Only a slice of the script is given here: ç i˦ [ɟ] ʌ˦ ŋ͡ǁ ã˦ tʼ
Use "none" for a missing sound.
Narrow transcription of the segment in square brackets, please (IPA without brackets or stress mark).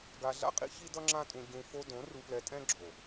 d